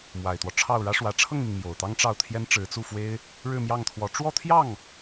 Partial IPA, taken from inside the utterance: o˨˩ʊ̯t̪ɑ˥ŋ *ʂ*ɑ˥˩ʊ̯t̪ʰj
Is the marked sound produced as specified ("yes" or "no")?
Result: no